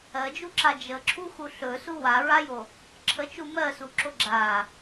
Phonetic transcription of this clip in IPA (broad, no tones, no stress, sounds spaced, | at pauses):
ɜ d͡ʒ u ǁ a d͡ʒ ə ǁʰ u x u ɬ ɵ s u w a ɹ a j o | ǁʰ ə t͡ʃ u m ɜ s u ǁ o ɡ͡ǁ a